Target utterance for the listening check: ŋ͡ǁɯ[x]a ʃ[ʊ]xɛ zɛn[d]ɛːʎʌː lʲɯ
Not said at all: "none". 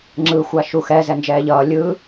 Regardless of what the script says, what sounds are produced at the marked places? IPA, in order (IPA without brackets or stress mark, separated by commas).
xʷ, u, d͡ʒ